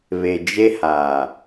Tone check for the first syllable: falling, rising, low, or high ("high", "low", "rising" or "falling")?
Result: low